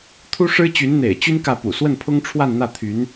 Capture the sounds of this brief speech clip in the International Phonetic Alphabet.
t̪ʰ u˥ ʂ ɻ̩˥ t͡ɕ y˧˥ n n̪ ḛ˨˩ ɪ̯ t͡ɕ y˥ n k ä˥˩ p ṵ˨˩ s w ə˥˩ n pʰ ʊ˥ ŋ ʈ͡ʂʰ w a˥˧ n n̪ ä˥˩ t̪ʰ y˧˥ n

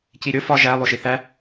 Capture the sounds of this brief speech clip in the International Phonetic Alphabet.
c i ɾʲ o f ɒ ʒ æ lˠ o ʃ i θ æ

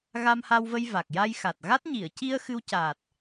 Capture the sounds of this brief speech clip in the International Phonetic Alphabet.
ɣ a˧ m h a˧ w v ə˧ j v a˨˩ k̚ j a˧ j x a˨˩ t̚ ɣ a˦˥ t̚ ɲ i˨˩˨ ə̯ c i˧ ə̯ x ɨ˧ w c aː˨˩ t̚

